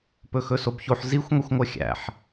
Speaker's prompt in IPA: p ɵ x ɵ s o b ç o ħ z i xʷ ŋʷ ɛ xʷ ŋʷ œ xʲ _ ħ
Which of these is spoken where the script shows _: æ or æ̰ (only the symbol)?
æ̰